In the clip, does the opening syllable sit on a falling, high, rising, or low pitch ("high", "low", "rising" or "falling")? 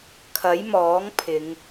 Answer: rising